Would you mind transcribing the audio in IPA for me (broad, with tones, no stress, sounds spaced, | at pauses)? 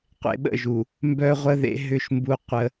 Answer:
qʷ ḛ˨ ɓ ə̰˦˨ ʒ u˨ | m b œ˦ ʁʷ ə˦ ð ḛ˦ ɦ ʏ˦ ʃ m b u˦ qʷ ə˦